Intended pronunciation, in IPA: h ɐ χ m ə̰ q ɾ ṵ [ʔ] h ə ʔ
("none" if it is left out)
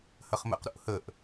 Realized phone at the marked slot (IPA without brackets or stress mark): ʔ